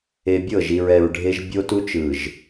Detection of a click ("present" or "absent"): absent